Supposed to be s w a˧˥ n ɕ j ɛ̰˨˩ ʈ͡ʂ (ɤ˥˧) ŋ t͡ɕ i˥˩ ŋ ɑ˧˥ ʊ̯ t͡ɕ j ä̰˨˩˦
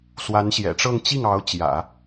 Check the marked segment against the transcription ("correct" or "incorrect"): correct